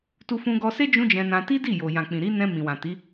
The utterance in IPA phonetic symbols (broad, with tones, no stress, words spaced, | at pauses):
tu˧fũ˧ɡɔ˧ se˦ d͡ʒũ˦d͡ʒɛ̃˧nã˧ ti˦di˦˨jo˨ jã˨k͡pĩ˨ɾi˨˦nɛ̃˧ mĩ˨wã˨ti˨˦